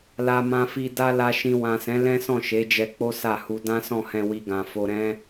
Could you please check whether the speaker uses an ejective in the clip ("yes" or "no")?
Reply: no